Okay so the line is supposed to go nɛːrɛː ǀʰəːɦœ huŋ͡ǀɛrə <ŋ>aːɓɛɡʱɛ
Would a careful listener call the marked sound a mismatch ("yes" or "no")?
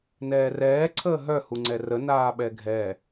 yes